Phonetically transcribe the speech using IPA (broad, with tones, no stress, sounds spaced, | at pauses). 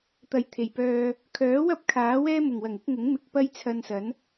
t̪ ɐ˨ j t̪ʰ e˨˩ j p œː˧ | kʰ œː˨˥ w ɐ˥ p̚ kʰ aː˨˥ w ɛː˥ m ʊ˨˩ ŋ w ɐ˨˩ ŋ ɪ˨˥ k̚ ŋ ʊ˨˥ ŋ m ɪ˨ k̚ p ɐ˥ j t͡sʰ ɐ˧ n s ɐ˨˥ n